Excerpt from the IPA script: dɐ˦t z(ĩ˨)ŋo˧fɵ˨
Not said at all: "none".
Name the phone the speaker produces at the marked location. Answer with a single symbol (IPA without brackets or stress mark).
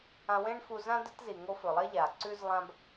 i˨